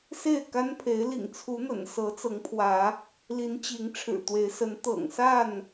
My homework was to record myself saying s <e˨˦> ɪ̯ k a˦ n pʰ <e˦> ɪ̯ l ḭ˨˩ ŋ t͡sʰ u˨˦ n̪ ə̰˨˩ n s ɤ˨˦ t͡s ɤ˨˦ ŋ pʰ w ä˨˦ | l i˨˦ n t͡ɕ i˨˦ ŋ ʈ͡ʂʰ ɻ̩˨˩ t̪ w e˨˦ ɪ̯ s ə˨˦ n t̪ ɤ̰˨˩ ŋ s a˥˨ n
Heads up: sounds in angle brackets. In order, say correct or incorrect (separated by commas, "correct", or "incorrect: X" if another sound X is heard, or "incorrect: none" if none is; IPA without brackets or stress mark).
incorrect: e˥˨, incorrect: e˨˦